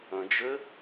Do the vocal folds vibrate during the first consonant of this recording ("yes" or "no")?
yes